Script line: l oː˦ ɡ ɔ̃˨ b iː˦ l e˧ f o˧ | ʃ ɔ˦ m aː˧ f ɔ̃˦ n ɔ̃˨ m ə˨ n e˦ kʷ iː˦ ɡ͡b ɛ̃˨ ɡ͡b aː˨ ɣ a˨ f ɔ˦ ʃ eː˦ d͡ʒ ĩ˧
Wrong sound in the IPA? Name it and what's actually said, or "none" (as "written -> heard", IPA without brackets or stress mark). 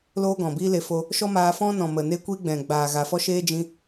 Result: none